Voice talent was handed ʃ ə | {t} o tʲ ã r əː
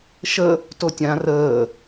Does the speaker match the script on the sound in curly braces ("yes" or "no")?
yes